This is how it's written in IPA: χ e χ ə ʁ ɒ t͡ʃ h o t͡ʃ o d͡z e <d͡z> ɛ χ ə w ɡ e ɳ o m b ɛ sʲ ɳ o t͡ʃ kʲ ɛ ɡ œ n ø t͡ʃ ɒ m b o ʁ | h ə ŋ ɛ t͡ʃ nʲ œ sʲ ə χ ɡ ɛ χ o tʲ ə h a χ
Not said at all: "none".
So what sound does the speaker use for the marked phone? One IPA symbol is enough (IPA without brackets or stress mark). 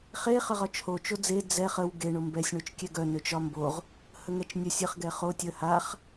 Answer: d͡z